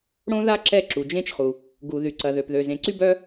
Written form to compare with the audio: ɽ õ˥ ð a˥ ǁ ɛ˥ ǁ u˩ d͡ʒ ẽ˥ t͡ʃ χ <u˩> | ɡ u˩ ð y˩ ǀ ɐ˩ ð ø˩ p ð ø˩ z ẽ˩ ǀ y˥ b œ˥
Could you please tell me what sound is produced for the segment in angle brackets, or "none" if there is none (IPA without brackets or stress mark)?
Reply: u˩